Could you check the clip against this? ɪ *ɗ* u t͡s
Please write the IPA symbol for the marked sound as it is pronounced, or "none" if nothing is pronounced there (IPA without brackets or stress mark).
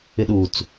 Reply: ɗ